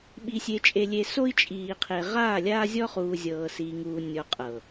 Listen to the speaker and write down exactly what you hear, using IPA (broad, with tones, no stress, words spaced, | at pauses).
ɓi˨sʲe˨t͡ʃʼe˨lʲe˨ so˦i̯t͡ʃʼiː˨qʰe˨ ʁaː˦˨lʲaː˦zʲɔ˦χuː˨ zʲɤː˨siː˨ŋuː˨ nʲɔ˨ qʼɤ˨